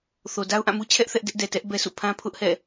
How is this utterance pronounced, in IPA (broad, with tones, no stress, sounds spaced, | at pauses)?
θ o˨ d a˦ ʊ̯ ʔ ã˦˨ m u˦ t͡ɕʰ ɛ˦ ʔ θ ɛ˦ ʔ d ɛ˦ ʔ d ɛ˨ t ɛ˦ ʔ b ɛ˦ sʰ ṵ˦˨ pʰ ã˦ pʰ ʊ˦ ʔ h ɛ̰˦˨